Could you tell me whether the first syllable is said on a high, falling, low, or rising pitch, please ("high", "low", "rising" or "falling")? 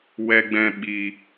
low